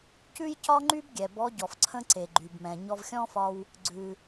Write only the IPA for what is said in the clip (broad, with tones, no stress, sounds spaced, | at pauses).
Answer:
c ʉ˥ j c ɒ˥ ŋ͡ǃ y˥ b ɡʲ ɛ˩ b ɔ˧˥ ɟ ɔ˩ f ǀʰ ə̃˥ ǀ e˩ ɡ͡ǃ y˩ b m ɛ̃˩ ɲ ɔ˧ v xʲ ɔ̃˥ f ɒ˧ w | ɡ͡ǀ ʉ˩